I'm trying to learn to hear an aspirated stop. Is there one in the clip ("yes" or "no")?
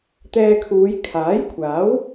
yes